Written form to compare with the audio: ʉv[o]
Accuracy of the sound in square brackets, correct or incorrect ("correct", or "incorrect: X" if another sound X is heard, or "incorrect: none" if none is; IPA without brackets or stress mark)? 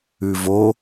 correct